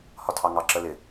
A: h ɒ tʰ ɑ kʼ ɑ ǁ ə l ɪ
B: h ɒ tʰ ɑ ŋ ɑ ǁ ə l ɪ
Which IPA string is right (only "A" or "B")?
B